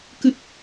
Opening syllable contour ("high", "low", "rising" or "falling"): low